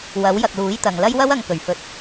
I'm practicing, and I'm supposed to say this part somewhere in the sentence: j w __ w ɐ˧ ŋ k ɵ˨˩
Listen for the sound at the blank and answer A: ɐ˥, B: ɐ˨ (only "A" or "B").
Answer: A